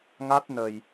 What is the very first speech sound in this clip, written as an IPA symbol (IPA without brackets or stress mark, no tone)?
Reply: ŋ